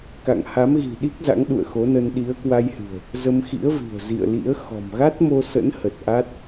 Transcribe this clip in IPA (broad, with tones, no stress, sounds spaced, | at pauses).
k a̰˧˨ ŋ h a˨˦ m ɣ i̤˨˩ ɗ i˦˥ k̚ z a̰˧˥ ŋ ɗ ṵ˧˨ ə̯ x o˨˦ n ə˧ n ɗ i˨˦ ə̯ k w a˧ j h ɨ̤˨˩ ə̯ | z ə˧ m x ḭ˧˥ ə̯ v i̤˨˩ ə̯ z ḭ˧˨ ə̯ l ḭ˧˥ ə̯ x ɔ̤˨˩ m ɣ a˦˥ t̚ m o˧ s ə̰˧˥ n h ə˨˩ t̚ ʔ a˦˥ t̚